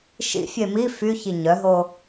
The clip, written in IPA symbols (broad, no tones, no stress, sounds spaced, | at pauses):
ʃ ḭ fʲ e m i f y ç i ɲ œ ɦ o